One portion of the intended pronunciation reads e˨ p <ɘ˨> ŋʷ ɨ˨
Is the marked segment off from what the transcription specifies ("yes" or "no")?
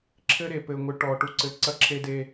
no